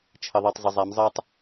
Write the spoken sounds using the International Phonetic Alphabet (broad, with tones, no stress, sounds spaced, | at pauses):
t͡ʃʰ ə˨ ðˤ e˨ tˤ zˤ ə˨ zˤ a˨˦ m zˤ ɜ˦ tˤ